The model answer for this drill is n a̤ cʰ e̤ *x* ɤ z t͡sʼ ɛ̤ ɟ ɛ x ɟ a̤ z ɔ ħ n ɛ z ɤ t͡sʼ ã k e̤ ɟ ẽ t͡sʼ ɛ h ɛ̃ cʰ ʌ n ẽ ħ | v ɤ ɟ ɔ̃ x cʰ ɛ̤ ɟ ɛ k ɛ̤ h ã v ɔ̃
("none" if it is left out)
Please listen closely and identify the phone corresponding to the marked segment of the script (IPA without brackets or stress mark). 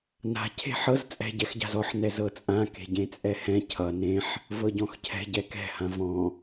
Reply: ħ